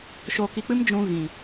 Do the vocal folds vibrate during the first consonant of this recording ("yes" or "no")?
no